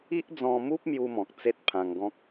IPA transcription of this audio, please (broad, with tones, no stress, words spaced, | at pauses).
i˦ʔd͡zɔ̃˧mu˦p̚ mju˦mɔ̃˨k̚ t͡se˦t̚pʰã˧ŋɡɔ̃˦k̚